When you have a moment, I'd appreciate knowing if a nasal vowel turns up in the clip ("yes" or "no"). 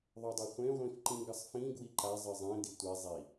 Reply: yes